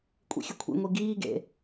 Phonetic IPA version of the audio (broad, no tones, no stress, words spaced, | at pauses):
kʷʼḭxʲɵkʷʰḭ ŋʷiɡiːɡḛ